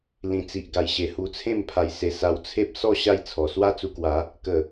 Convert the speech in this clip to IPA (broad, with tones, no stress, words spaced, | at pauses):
lĩ˨˩t͡si˨ʔɡa˨˩jɕe˨˩ hu˧t͡sʰẽ˥˧m pʰa˧jse˧ sa˧wt͡sʰe˦p̚ sɔ˥˧ ɕa˥˧jt͡sʰɔ˨˩ swa˥˧t͡su˧kwa˨˦ | kə˨˩